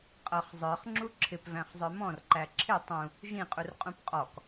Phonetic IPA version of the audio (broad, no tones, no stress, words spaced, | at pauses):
qʼʌχ zˤə˞χŋ͡ǁu ǁʰɪpvæ̃χzˤə˞ mɔ̃rǃæ ǁʰɪ tˤũ | ʒĩqʼurqʼũp qʼɔk